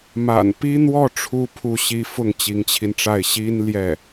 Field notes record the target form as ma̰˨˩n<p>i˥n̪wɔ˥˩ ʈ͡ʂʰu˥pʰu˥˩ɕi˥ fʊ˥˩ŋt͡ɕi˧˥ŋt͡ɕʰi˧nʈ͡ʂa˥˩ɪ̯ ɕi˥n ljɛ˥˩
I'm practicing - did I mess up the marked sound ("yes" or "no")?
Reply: no